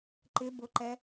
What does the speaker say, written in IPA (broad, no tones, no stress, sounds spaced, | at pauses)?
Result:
ǃ ɪ b ʊ ǃ ɛ